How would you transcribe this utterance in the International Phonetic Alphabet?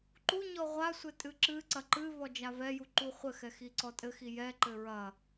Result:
ǃ u ɲ ɔ ʁʷ a sʷ ɘ tʼ ɨ ǁ ɨ ǀ ɐ ǃ ɨ v ɔ d͡ʒ a v ɛ j u ǃ u χʷ ɘ x ɛ x i ǀ ɔ tʼ ɘ x i j ɛ ǃ ɘ ɹ ɐ

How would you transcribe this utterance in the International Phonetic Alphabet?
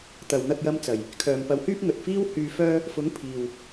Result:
t̪ ɐ˨ w n̪ ɐ˧ k̚ j ɐ˧ m t͡s ɐ˨˩ j | kʰ œː˨ m p ɐ˨˧ w h yː˥ p̚ ŋ ɵ˨ t̚ f iː˥ w h yː˧ f œː˥ | f ʊ˨˥ ŋ pʰ iː˨ w

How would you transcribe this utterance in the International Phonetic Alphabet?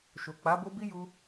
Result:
ʃ o˨ k͡p a˨˦ b o˦ b i˦ j u˦

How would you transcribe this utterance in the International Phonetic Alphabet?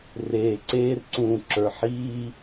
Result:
r eː˨ ǀ eː˦ r ǀ ũː˨ ǁ ə˞˨ ħ iː˦

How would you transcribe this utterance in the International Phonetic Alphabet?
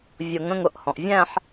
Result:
vʲ ʊ˨˩˦ ŋ ə̃˥˧ ŋ ʊ˧˩ ʔ h ɔ̃˩ ʔ vʲ æ̃˥˧ ħ

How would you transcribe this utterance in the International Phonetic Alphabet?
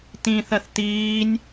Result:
t ĩ θ ɜ θ t iː nʲ

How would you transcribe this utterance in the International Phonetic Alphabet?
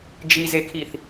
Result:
d͡ʒ i z e kʰ i θ

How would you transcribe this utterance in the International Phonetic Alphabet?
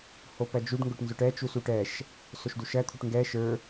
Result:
h o p ɜ d͡ʒ u ɖ ŋ ɡ ʊ ʈ n z ʊ ʈ ɛ t͡ʃ u s u ʈ ɛ ʃ | s o ʃ d u ʃ ɜ t̪ʰ u ʈ ŋ ɡ ɛ ʃ ə˞

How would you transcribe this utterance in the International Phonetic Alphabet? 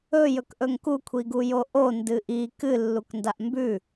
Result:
ɵ j ɵ k ʔ ɵ ŋ k u kʷʰ i ɡ u j o ʔ o n d ɨ ʔ i k ɨ lː u k n d a ʔ m b ʉ

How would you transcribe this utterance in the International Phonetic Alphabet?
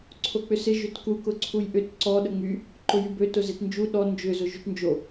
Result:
ǀʰ o k͡p ʏ s ɪ ʒ ʏ t k u k ʊ ǀʰ u j ʔ ʏ t ǀ ɔ ɗ ə ŋ͡m y | ǃ ʊ j y b ø t ʊ z ɪ t n d͡ʒ u ɗ ɔ n d͡ʒ ʏ z ʊ ʒ y t n d͡ʒ o

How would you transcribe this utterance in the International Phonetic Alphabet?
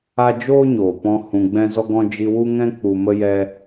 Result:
a˦ d͡ʒ oː˦ ɲ oː˨ p ɔ̃˧ h ũ˧ ɡ͡b ɛ̃˦ z ɔ˦ ɡ ɔ̃˦ d͡ʒ i˧ w u˦ ŋ ɛ̃˦ k͡p u˧ m ə˦ j ɛ˦

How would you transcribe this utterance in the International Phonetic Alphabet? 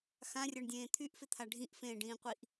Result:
x ã rʲ ə˞ ɳ dʲ ẽː t̪ʰ y ʔ f ɪ t̪ʰ a ɖʱ ĩ ʔ f ẽː ɖ ĩː qʷ i ʔ

